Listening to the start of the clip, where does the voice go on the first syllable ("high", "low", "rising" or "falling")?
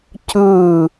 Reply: falling